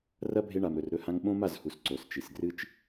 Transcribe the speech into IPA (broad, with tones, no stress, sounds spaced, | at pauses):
r ɐ˦ bʱ e˧ ɳ a˨ m ɾ ɵ˨ r ɾ ɵ˧ h ã˧ ŋ ɓ õ˦ m a˦˨ z h u˨ s ǀ o˨ s t͡ʃ i˨ s ɡ r ɨ˦ t͡ʃ